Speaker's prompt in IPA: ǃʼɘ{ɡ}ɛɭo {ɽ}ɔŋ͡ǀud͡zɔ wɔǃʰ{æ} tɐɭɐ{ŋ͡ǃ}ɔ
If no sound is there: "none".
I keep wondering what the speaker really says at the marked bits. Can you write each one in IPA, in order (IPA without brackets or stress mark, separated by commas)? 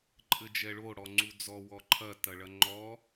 d͡ʒ, ɽ, ɐ, ŋ͡ǃ